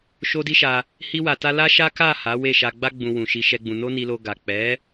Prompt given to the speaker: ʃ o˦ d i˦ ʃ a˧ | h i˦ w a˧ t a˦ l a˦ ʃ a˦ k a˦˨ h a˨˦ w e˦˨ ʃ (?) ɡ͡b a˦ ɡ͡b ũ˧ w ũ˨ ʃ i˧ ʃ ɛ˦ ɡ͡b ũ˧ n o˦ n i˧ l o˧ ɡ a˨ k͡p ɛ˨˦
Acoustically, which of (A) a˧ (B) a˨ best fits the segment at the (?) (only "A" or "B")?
A